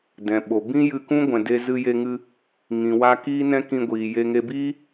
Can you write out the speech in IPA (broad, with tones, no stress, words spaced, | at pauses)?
dɛ̃˨ɓo˨ bĩ˦jɨ˧kũ˦ ɡʷɛ̃˨de˧ zɨ˧je˧ŋɨ˧ | ŋĩ˨wa˧ kiː˦nɛ̃˦kĩ˧ɡʷiː˨ je˧ŋe˧biː˦